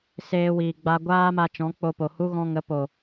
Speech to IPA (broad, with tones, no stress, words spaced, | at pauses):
seː˧wiː˨ ɡ͡ba˧ɡʷaː˦ma˧ t͡ʃɔ̃˨˦k͡po˧po˨hu˦ ɣɔ̃˧ŋə˨˦ po˨